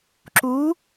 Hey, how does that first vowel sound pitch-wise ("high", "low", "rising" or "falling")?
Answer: rising